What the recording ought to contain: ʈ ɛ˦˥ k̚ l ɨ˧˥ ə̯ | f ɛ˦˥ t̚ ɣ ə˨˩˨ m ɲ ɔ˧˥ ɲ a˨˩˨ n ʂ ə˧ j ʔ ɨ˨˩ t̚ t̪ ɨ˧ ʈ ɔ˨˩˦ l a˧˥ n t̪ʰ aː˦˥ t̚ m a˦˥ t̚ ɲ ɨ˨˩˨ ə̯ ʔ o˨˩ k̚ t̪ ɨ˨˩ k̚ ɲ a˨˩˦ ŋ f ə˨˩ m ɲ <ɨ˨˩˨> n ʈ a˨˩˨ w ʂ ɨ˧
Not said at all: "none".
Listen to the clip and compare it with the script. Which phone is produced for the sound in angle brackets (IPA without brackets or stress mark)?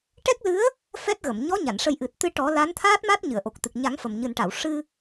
ɨ˨˩